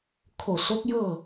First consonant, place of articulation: velar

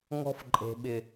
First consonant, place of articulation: velar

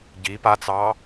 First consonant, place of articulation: palatal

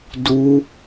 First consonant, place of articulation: alveolar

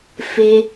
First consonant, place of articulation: labial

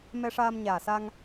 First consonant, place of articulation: labial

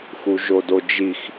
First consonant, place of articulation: velar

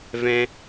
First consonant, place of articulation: labial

